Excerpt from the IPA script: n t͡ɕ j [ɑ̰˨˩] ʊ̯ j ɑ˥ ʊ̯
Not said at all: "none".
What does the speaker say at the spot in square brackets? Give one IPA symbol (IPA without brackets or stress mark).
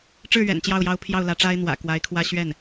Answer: ɑ˥˩